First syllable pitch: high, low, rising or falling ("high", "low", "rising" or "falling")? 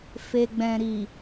low